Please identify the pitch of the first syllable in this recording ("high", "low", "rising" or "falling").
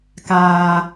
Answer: low